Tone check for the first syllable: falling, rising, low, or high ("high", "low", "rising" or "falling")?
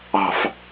low